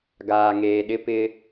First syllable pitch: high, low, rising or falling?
low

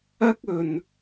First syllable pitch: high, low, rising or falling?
high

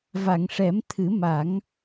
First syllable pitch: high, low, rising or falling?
low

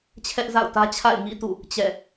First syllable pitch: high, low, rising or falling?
high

